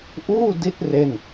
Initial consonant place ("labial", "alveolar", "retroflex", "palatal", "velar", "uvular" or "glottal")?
glottal